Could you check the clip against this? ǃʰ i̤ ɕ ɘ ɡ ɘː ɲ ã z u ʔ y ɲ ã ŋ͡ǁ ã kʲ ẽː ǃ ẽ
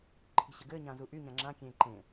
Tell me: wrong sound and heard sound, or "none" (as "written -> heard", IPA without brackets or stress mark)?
none